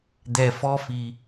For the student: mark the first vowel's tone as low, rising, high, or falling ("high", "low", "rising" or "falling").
low